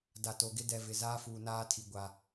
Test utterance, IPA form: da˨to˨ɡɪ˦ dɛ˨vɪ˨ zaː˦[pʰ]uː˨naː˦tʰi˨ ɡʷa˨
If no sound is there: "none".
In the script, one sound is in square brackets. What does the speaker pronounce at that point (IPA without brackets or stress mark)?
f